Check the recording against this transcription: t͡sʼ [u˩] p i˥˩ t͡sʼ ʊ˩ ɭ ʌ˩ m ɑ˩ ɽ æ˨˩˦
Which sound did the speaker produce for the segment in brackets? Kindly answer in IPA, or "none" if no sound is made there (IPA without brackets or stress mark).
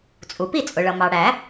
u˩